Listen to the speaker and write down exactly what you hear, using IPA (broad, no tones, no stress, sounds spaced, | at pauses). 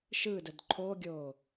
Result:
ʃ ɯ d ə d ǃʰ o ɡʲ o